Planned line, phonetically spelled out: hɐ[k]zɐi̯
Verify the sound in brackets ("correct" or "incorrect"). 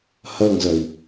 incorrect